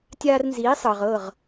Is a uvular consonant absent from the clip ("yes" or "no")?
no